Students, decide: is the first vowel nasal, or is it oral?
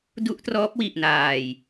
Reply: oral